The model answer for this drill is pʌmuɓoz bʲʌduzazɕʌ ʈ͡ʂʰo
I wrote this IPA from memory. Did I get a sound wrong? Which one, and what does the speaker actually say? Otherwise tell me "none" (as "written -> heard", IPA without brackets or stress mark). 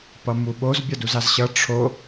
none